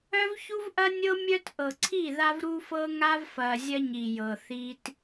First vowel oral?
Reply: yes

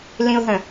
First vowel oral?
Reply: no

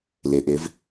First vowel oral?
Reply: yes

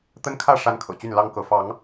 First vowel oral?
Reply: yes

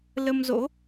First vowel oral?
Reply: yes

